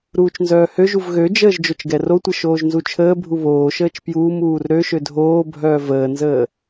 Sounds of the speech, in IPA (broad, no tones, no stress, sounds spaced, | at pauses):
ɾ uː t͡ʃ n z œː h ø ʒ u v ɣ ø d͡ʒ əː ʒ d͡ʒ o t͡ʃ ɡ ɛ r o tʷ ə ʃ oː ʒ n z u t͡ʃʰ əː bʱ u β oː ʃ əː t͡ʃ p j uː m uː r ɾ ø ʃ ø dʱ oː bʱ œː v əː n z əː